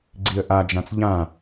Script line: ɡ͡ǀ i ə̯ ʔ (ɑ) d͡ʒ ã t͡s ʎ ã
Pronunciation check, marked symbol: incorrect: a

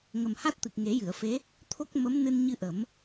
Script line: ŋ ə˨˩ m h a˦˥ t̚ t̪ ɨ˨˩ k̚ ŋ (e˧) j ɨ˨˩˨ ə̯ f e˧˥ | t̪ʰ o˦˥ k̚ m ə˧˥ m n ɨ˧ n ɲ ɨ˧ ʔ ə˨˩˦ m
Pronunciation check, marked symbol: incorrect: e˨˩˦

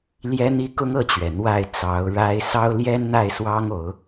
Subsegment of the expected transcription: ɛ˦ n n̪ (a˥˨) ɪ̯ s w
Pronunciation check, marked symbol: correct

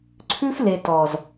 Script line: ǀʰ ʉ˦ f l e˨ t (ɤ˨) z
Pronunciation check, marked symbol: incorrect: ɔ˨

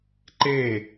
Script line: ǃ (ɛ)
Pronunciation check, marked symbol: incorrect: e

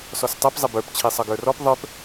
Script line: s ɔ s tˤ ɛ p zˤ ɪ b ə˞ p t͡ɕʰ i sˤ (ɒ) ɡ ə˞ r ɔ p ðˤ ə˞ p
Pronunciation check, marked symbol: incorrect: ʌ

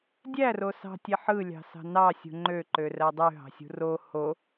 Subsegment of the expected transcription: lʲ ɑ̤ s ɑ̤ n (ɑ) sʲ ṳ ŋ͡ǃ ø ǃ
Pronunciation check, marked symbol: correct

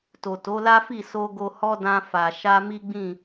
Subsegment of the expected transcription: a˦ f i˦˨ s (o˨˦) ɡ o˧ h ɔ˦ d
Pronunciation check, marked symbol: incorrect: o˧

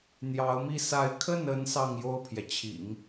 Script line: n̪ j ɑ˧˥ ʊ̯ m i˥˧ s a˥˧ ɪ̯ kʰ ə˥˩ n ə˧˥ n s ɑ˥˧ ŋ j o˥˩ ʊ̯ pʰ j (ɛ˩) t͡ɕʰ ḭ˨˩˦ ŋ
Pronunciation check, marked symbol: correct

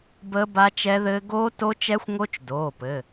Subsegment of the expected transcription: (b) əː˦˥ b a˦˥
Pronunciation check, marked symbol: correct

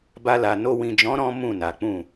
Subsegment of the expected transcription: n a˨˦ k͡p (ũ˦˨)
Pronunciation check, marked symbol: correct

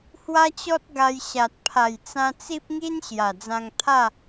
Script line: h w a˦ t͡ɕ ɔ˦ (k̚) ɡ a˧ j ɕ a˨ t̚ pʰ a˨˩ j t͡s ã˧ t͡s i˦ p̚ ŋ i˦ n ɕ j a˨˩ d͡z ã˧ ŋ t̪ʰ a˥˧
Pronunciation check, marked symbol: incorrect: t̚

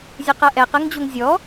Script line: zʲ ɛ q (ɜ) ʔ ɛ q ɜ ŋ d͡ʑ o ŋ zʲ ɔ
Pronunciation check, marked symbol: correct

